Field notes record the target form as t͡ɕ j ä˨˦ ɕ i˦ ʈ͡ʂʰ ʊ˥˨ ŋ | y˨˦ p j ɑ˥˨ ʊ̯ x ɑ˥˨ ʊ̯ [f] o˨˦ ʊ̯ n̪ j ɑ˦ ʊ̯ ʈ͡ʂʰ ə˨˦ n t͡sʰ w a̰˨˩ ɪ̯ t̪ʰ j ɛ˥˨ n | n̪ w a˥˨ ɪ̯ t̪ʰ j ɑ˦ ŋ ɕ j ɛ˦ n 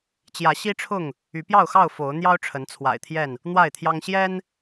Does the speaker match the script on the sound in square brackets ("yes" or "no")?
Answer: yes